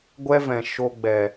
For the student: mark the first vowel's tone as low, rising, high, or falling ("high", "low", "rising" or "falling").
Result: high